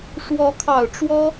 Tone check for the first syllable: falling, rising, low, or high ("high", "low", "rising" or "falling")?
rising